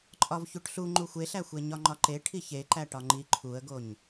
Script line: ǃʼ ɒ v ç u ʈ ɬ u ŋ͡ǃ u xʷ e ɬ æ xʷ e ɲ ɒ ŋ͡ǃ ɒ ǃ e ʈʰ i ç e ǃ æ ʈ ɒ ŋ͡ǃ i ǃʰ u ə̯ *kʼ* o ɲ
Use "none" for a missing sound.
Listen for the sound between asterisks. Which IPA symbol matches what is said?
ɡ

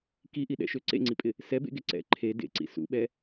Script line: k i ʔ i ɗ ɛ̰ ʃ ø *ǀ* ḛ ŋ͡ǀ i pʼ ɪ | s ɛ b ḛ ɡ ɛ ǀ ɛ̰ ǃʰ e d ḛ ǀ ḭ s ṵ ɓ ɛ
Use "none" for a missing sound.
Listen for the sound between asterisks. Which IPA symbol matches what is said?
ǀ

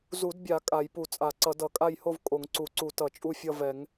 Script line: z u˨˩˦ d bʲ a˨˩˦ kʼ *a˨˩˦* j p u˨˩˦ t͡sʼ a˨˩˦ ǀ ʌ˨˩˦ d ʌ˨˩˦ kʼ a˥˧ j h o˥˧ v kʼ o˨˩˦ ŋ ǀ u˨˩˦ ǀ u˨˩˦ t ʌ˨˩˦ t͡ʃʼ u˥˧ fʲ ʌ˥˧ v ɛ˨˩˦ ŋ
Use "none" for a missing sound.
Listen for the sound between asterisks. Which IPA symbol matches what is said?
a˨˩˦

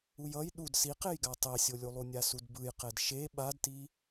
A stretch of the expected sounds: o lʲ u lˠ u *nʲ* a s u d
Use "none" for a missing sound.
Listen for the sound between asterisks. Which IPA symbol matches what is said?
nʲ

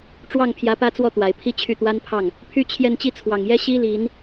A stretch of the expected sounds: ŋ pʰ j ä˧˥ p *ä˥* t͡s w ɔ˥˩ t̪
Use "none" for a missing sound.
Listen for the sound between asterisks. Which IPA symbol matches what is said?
ä˥˧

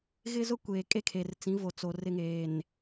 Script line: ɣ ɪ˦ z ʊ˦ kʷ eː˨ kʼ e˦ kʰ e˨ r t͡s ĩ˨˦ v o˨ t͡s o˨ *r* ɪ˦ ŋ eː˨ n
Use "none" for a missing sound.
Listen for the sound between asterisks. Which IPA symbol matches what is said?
r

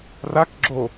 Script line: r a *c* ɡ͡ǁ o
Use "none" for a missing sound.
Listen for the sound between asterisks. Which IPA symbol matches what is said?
k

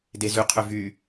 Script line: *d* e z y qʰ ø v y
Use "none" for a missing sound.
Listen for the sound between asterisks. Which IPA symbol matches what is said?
d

